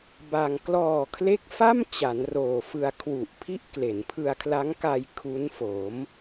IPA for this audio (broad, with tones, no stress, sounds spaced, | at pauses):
b a˧ ŋ k l ɔː˨˩ kʰ l e˦˥ k̚ f a˥˩ m t͡ɕ a˩˦ n r oː˨˩ f ɯ˧ a̯ kʰ w u˨˩ ʔ pʰ i˥˩ ʔ k l e˩˦ n pʰ ɯ˧ a̯ kʰ l a˦˥ ŋ k a˧ j kʰ u˦˥ n f o˩˦ m